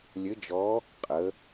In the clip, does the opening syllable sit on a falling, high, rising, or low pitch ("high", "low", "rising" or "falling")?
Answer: rising